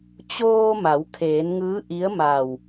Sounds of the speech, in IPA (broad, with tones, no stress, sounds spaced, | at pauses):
t͡ɕ oː˧ m a˩˧ w kʰ eː˩˧ n ŋ ɯː˧˥ ʔ i˧˥ ə̯ m a˧˩ w